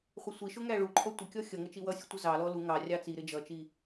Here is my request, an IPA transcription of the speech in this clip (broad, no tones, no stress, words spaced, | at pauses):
χʷɪsʷiʃʊ ŋæɭuǃʰɔ tʷɪkʲɔ xʲʌŋə t͡ʃiwʌsʲu tʷəzɑlɔ lu ŋɑrʲɑ t͡siɾɪ d͡ʒʌt͡ʃi